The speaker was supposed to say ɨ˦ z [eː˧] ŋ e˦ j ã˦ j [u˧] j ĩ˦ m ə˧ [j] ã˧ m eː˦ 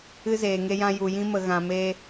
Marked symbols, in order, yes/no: yes, yes, no

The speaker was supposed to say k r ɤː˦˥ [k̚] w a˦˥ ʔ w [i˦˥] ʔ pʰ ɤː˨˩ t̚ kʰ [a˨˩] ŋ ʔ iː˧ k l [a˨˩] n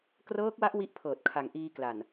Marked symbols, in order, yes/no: yes, yes, yes, yes

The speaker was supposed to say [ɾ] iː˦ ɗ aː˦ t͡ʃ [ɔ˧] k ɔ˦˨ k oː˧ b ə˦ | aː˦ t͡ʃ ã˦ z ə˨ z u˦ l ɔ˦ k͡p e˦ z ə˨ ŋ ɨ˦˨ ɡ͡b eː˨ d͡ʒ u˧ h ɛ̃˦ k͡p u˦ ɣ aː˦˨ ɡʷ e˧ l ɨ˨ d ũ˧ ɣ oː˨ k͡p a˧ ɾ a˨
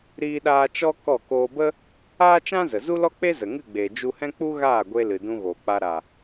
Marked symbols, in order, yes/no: yes, no

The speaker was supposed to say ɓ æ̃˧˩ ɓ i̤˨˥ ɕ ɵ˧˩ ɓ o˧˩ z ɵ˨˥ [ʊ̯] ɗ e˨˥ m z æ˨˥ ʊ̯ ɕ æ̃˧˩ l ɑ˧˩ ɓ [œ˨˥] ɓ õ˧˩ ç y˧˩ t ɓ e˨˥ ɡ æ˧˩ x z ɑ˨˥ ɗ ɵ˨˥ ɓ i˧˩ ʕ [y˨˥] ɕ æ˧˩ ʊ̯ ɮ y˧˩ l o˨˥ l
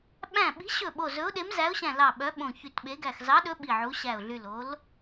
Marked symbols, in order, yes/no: yes, yes, no

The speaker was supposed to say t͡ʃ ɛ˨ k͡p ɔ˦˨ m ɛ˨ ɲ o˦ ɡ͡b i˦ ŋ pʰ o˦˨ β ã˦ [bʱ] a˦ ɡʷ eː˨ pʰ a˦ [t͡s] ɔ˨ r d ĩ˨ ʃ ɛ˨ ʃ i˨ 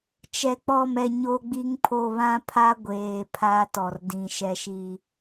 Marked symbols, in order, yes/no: no, no

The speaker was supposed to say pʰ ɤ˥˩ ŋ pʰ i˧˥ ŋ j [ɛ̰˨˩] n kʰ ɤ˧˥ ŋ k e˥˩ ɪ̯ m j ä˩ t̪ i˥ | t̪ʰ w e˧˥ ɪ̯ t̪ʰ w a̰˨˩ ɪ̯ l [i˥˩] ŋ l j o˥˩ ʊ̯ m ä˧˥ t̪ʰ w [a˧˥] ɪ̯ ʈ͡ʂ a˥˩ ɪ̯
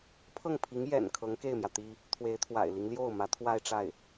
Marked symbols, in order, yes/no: yes, no, no

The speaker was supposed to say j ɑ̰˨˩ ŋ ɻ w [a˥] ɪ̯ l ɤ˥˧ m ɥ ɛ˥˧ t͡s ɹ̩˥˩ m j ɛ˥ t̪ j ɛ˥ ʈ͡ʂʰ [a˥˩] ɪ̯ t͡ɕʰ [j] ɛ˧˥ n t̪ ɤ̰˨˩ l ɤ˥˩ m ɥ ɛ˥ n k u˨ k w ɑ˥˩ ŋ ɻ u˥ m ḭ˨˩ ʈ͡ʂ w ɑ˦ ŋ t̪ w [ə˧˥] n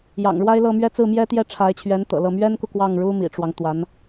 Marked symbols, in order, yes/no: yes, no, no, no

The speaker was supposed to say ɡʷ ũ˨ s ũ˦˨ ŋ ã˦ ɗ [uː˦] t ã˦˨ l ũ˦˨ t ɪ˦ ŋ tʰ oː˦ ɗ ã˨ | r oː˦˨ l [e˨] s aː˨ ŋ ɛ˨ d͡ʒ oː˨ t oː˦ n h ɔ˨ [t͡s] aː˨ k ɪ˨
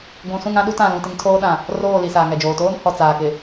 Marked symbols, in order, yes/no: no, no, yes

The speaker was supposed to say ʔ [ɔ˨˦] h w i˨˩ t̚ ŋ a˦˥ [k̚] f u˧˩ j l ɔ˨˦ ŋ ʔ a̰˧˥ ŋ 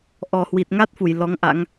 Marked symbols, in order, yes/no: no, no

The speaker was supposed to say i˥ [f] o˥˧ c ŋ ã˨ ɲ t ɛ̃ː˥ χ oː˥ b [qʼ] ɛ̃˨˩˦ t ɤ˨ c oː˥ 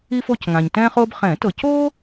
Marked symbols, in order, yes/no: yes, no

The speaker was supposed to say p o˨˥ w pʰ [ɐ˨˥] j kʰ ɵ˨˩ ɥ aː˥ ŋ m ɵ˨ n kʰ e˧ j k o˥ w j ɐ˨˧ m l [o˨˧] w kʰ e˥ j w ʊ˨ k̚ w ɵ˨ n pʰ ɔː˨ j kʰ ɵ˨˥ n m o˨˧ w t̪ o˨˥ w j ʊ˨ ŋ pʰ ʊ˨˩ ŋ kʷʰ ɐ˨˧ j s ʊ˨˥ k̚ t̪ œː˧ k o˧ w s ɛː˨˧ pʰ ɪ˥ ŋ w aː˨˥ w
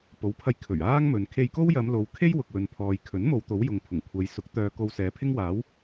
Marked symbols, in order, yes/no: no, yes

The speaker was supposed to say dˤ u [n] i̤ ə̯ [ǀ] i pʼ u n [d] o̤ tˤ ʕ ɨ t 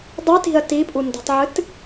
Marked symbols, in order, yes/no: no, no, yes

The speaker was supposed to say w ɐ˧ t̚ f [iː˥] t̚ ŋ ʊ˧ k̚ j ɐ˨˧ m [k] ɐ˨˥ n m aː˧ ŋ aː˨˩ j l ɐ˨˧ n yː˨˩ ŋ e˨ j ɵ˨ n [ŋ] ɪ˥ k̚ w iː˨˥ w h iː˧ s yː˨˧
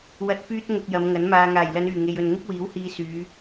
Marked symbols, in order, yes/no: no, no, yes

